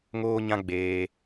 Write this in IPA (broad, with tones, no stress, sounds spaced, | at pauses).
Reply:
ŋ oː˦ ɲ ã˦ ɡ͡b eː˦